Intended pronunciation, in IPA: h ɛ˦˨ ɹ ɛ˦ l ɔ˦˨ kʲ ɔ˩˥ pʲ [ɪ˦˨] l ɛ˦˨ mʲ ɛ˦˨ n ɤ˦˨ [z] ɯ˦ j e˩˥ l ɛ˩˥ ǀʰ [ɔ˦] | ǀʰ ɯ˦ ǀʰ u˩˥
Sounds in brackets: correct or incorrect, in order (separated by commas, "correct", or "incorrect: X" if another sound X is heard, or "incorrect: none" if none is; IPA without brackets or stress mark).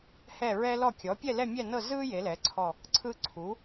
incorrect: ɛ˦˨, correct, incorrect: ɔ˦˨